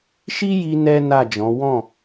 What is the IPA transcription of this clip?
ʃ i˦ j i˦ n ɛ˦ n a˦˨ d͡ʒ ɔ̃˨˦ w ɔ̃˦˨

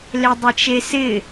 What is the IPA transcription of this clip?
l e dˤ ɪ t͡ʃ e s ɪ

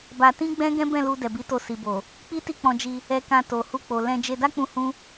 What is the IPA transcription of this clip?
b a˧ t ĩ˦ ɡ͡b ɛ̃˦ ɡ ɛ̃˦ b ɛ̃˦˨ l u˧ d ɛ˨ b i˨˦ t o˧ s i˨ b o˨ | k͡p i˦ t i˦˨ k͡p ɔ̃˧ d͡ʒ i˧ | ɛ˧ k ã˧ t o˨ h u˧ k͡p o˨ l ɛ̃˧ d͡ʒ e˧ d a˦ k͡p ũ˧ h ũ˦

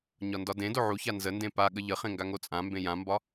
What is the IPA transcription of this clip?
ɲ ɒ n d ɒ d ẽ d o ʕ u ç a n z ə n d ẽ p a ɠ ə ʎ ə χ ẽ ŋ ɡ a ŋ o t͡sʼ ã m b ẽ j ã m b ɒ

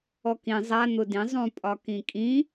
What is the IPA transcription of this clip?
ɔ k ĩ zˤ a n̪ ʊ d ĩ zˤ ũ pʼ ɒ k ĩ kʼ ĩ

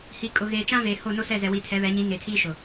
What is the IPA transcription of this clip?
h i˨ kʼ ʊ˨ ɣ eː˨ t͡ʃ ã˦ v eː˨ h o˦˨ n o˦ s ɛ˦˨ z ɛ˨ w i˨ tʰ ɛ˨˦ β ɛ˨˦ ɲ ĩ˨˦ ŋ e˨ tʰ iː˦ ʃ ʊ˨

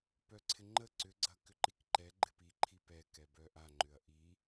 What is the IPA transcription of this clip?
p œ ǀʰ ɪ ŋ͡ǃ ə ǀ ʏ ɡ͡ǀ ɐ k ʏ ǃ i k ǃ ɛ ɡ͡ǃ ɪ p i ǃʰ i p ɛ k ɛ b œ ʔ a ŋ͡ǃ ʏ ɐ̯ ʔ i

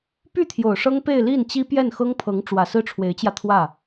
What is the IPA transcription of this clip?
p y˥˩ t̪ʰ j o˨˩ ʊ̯ ʂ ɤ˥ ŋ p e˥˧ ɪ̯ l i˥˩ n t͡ɕ i˥ p j ɛ˥˩ n x ɤ˥ ŋ pʰ ɤ˧˥ ŋ ʈ͡ʂ w ä˨˩ s ɹ̩˥˩ ʈ͡ʂʰ w e˧˥ ɪ̯ t͡ɕ j ä˧ t̪ʰ w ä˥˩

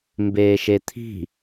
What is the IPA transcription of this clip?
m b eː ʃ e t̪ʰ i̤

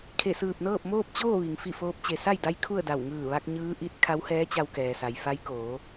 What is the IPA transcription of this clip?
kʰ e˧˩ s ɯː˧˩ p̚ n ɤː˥˨ p̚ m oː˥˨ p̚ t͡ɕ oː˥˨ ʋ i˩ ŋ f i˥˨ f oː˧˥ p̚ t͡ɕ e˩ s a˥˨ j d a˧˥ j kʰ u˥˨ ə̯ d a˧˩ w ŋ ɯː˧˩ ʋ a˧ k̚ ɲ ɯː˧˥ ʔ i˧˥ t̚ kʰ a˧˥ w h ɛː˧˥ t͡ɕ a˧ w k ɛː˩ s a˩ j f a˧˥ j k oː˩˧

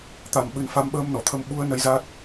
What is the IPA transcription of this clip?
t̪ a˧ m ɓ ɨ˨˦ n f a˨˦ m ɓ əː˧ m n ɔ˨˩ t̪ʰ ə˨˦ m ɓ u˨˦ ə̯ n ə˨˦ j z a˦˥ t̚

